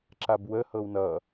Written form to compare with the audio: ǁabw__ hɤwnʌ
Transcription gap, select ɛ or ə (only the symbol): ə